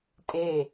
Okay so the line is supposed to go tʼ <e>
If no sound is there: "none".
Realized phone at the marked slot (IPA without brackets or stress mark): e